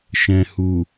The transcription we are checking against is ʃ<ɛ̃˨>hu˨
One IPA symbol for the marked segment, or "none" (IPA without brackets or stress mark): ɛ̃˨